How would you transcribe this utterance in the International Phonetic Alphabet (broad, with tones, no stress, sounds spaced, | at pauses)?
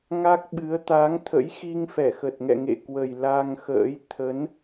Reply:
ŋ a˦˥ k̚ ɓ ɨ˨˦ ə̯ t̪ a˨˦ ŋ t̪ʰ ə̰˧˥ j x i˧ ŋ f ɛ˧˩ x ə˨˩ t̚ ŋ ɛ̰˧˨ ŋ ḛ˧˨ k w ə˨˩ j l a˧ ŋ x ə̰ː˧˥ j t̪ʰ ə˨˦ n